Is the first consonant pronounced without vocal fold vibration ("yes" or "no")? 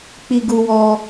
yes